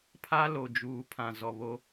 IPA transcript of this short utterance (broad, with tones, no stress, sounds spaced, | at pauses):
pʰ a˦ l o˨ d͡ʒ uː˨ pʰ ã˨ z ɔ˨ β o˦